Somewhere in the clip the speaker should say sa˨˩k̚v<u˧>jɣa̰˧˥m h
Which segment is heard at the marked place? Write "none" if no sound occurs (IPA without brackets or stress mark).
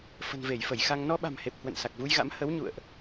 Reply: u˧